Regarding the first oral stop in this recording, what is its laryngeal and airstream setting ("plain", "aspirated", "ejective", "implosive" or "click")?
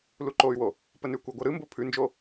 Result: click